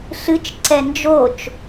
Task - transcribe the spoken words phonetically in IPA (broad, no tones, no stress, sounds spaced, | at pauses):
ɬ ɨ t͡ʃ ǀ ɛ n d͡ʒ o t͡ʃ